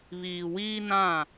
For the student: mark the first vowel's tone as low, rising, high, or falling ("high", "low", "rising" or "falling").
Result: low